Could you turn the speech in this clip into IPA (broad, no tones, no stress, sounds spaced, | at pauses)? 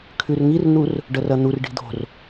kʰ ʉ r ŋ i r n̪ u r | ɖ ɐ r ɐ n̪ u r ɖ i̤ d̪ o̤ r